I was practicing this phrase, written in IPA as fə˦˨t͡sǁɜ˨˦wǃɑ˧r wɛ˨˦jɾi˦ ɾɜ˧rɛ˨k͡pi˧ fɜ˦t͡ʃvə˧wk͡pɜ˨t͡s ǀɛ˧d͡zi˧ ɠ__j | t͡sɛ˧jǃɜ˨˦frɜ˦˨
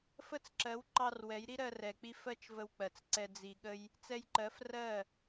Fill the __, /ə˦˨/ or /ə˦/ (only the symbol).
ə˦